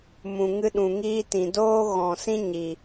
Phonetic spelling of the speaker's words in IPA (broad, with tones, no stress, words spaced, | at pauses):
mũ˨ŋɨ˧ɗũ˨ŋiː˧ tĩ˨doː˦ ɣɔ̃˨sĩ˦ ɲi˨